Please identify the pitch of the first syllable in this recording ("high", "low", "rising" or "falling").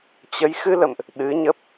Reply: rising